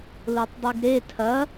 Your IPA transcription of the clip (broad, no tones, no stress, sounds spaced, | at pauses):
l o tˤ dˤ i ɡ ɾ e tʰ ɐ